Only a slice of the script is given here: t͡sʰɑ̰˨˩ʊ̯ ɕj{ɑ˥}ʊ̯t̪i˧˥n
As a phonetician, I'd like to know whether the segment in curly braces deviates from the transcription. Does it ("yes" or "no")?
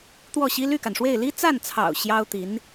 no